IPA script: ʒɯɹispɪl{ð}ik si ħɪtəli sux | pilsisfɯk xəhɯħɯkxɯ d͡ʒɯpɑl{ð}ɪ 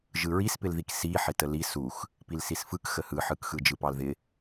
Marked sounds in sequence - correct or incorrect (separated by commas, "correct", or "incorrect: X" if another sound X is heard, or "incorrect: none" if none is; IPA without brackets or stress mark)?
correct, correct